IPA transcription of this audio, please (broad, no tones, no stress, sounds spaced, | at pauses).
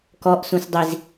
k ɔ ʔ s ũ s dˤ i z